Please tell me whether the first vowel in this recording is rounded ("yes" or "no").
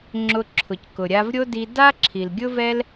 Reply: yes